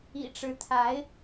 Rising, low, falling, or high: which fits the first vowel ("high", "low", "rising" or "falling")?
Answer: low